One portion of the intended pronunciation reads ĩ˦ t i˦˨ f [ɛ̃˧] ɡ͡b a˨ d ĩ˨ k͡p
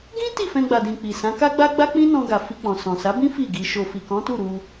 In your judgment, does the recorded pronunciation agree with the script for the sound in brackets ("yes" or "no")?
yes